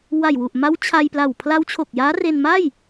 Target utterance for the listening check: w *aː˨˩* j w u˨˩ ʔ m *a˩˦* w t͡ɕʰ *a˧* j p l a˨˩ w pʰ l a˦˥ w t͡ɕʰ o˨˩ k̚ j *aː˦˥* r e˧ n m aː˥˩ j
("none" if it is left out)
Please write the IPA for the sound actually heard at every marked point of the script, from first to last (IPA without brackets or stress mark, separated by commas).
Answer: a˨˩, a˦˥, a˧, aː˦˥